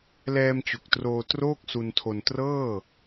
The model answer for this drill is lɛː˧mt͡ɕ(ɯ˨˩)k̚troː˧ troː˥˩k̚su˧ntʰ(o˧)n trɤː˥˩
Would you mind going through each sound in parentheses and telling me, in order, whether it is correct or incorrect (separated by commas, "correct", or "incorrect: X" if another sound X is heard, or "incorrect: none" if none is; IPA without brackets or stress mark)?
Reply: incorrect: u˨˩, correct